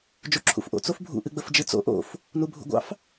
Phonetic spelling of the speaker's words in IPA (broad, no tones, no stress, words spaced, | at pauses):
d͡ʒuǁʰṵfʔo̰ t͡sofbʱṵ ʔɨɡ͡bəfd͡ʒɨt͡so̰ ʔo̰f | nubʱṵɡʷɑ̰f